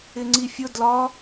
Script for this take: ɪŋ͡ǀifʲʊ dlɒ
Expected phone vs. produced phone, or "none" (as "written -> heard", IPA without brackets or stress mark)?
none